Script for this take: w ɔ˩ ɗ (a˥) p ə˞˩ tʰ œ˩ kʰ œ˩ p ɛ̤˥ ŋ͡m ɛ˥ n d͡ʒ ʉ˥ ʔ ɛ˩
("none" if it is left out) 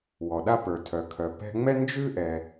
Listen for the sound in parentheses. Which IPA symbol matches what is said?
a˥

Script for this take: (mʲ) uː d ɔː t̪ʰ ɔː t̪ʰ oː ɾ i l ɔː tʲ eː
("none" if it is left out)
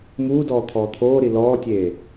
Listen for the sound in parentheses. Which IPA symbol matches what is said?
m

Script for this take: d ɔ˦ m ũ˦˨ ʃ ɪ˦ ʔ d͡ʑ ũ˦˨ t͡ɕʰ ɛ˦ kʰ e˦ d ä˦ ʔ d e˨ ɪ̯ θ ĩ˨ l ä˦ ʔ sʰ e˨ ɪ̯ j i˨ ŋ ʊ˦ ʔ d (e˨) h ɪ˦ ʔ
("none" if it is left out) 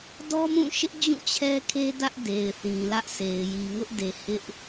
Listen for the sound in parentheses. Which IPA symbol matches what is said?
e˨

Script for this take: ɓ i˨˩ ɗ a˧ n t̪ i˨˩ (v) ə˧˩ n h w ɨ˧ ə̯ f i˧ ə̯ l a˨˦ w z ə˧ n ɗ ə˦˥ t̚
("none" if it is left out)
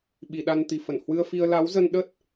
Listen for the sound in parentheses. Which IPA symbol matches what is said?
f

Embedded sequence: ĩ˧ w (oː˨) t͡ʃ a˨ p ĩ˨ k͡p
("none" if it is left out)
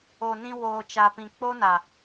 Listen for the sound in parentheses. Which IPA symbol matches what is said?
oː˨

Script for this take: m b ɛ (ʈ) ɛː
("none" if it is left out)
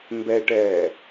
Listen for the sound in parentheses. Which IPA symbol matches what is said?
ʈ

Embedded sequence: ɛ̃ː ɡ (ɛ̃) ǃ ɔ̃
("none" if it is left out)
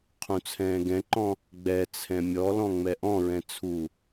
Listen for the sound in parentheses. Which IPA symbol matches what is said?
ɛ̃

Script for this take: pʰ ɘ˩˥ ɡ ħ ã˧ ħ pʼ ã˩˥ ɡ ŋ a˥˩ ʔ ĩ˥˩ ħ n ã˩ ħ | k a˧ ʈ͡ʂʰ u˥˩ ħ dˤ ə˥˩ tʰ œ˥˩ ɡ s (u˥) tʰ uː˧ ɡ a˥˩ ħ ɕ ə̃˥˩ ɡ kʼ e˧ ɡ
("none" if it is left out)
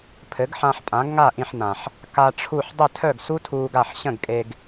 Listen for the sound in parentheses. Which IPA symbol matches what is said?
u˥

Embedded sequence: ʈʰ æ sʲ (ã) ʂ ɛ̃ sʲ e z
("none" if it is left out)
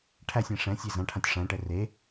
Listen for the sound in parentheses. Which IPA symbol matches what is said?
æ̃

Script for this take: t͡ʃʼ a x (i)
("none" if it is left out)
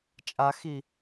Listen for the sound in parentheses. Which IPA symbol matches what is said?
i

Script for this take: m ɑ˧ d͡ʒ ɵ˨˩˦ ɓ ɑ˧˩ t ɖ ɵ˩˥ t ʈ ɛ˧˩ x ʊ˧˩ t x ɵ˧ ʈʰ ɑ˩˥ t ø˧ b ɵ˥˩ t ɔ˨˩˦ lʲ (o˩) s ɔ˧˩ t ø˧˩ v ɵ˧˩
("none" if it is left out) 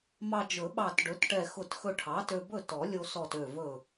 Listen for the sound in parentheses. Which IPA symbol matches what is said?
o˧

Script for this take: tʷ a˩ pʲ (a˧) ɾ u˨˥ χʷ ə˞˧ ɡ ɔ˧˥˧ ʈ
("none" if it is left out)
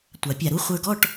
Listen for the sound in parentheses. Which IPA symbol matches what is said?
a˧˩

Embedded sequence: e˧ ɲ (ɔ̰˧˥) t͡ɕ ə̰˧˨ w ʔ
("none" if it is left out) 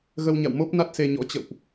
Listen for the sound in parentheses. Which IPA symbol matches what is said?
ɔ̰˧˥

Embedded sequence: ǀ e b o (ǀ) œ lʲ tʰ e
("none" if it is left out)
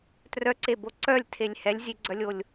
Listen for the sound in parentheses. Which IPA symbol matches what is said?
ǀ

